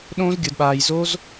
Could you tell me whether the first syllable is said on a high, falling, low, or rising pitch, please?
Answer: high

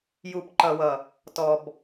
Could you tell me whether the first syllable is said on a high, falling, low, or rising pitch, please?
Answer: low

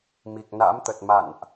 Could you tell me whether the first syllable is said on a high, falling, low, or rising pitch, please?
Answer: low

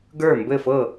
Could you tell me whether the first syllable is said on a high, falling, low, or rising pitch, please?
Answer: falling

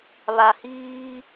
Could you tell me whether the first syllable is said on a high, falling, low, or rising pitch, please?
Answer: low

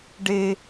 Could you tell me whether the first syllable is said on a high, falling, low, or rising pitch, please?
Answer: high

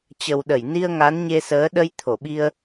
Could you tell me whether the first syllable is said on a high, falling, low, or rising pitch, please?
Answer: low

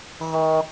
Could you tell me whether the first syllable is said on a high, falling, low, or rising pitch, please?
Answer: low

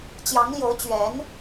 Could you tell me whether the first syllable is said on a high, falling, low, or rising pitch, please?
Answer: rising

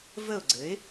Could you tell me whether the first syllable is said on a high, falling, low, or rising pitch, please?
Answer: falling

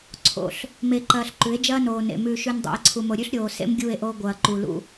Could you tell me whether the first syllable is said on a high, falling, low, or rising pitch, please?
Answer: rising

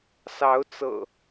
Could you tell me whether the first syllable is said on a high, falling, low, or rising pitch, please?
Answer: rising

